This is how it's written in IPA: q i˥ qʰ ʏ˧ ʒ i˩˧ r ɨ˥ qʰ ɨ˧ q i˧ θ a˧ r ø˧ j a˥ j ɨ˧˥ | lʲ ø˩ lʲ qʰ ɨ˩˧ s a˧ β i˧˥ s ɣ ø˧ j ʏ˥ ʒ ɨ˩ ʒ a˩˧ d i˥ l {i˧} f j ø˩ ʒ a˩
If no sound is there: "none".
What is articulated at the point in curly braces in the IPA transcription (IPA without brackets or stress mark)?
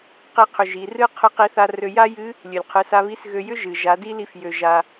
i˧